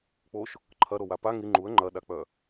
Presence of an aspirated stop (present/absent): present